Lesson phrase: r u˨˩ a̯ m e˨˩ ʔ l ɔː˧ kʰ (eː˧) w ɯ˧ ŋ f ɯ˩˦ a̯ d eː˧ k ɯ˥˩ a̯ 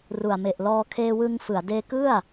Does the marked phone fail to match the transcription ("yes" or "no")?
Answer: no